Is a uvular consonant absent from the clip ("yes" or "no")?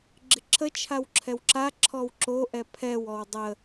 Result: yes